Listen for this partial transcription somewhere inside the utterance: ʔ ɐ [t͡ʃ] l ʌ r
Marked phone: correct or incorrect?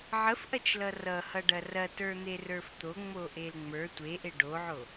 correct